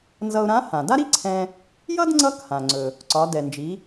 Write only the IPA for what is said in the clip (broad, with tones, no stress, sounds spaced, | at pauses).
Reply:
n z ʌ˧ ʊ̯ ɾ ã˧˥ h ã˩ d a˥ ɾ i˥ ǀʰ ɛ̃˧ | j ʌ˥ d ŋ͡ǀ ʌ˧˥ k h ã˩ ŋ͡ǀ ɵ˩ | ǀ ɒ˩˧ d ɛ˩ n d͡ʒ i˩˧